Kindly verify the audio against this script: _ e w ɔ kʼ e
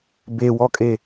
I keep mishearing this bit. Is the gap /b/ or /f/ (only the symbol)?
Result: b